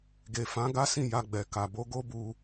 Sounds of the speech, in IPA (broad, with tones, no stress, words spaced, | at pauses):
ɡe˨fã˨˦ ɡa˦sĩ˦˨ ja˧ɡ͡bɛ˨ ka˨bo˧ ɡo˦bu˧